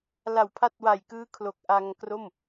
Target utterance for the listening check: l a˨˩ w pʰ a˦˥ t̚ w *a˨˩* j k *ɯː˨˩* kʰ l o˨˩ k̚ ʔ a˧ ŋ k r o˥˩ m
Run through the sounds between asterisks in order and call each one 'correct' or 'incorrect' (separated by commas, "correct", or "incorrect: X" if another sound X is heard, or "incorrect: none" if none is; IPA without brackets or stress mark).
correct, incorrect: ɯː˦˥